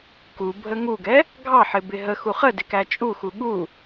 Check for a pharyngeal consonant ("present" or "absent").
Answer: present